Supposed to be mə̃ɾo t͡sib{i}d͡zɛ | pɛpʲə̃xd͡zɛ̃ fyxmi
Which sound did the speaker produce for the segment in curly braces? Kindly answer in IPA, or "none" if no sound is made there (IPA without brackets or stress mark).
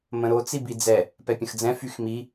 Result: i